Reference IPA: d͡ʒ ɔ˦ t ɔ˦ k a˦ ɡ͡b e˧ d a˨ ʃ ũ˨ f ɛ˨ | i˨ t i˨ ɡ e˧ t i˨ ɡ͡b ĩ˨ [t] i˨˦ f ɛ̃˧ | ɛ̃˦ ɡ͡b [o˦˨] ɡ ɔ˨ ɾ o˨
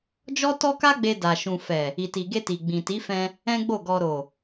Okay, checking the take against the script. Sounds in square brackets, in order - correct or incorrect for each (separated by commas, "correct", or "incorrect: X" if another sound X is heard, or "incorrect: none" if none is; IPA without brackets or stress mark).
correct, correct